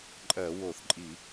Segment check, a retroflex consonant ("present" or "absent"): absent